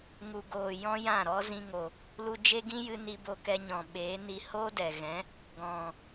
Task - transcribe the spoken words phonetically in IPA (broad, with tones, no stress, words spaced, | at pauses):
ŋu˨ɡoː˨ jɔ̃˦jã˦˨ɾɔ˦ zĩ˧ŋo˨ | lu˧d͡ʒe˦ɡĩ˦jɨ˧ ni˦bo˦kɛ˦ ɲɔ̃˨ɓeː˨˦ni˧ hoː˦dɛ˨ɣɛ̃˨˦ | ɡɔ̃˨